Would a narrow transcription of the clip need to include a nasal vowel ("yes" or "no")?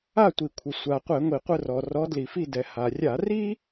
no